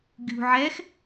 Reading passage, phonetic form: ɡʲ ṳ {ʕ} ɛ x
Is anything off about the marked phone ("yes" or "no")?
no